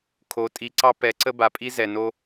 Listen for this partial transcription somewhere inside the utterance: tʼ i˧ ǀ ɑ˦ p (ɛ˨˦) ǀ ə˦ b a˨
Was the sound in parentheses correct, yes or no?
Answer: yes